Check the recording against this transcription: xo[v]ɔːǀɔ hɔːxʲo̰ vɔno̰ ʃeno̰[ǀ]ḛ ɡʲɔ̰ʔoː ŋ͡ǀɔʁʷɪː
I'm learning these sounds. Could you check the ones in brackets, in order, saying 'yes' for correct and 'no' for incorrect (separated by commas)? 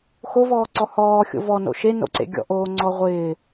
yes, yes